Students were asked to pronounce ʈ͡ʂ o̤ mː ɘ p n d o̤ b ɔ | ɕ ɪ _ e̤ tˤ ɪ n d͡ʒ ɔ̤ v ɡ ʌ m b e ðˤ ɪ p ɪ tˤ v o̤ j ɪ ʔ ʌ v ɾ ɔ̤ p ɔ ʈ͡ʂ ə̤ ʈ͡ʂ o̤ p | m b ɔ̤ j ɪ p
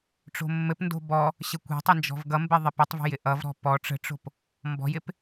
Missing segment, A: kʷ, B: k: A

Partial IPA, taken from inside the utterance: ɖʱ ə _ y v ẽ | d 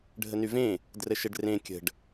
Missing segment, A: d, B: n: B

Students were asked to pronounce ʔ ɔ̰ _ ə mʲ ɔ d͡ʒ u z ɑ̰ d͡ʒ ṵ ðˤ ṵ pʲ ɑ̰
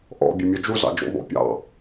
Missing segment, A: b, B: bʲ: B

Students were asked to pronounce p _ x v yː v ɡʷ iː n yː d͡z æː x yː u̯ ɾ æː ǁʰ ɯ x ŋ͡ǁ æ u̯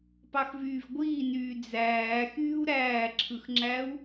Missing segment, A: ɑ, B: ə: A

